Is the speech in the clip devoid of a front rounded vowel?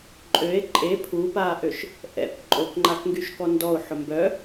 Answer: no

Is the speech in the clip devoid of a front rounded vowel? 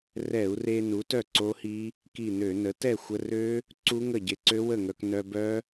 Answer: no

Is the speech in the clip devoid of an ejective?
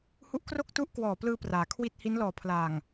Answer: yes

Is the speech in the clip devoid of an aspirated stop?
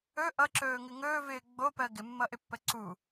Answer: yes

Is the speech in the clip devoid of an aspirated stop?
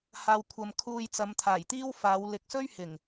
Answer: no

